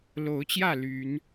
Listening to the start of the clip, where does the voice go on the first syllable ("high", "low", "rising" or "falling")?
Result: rising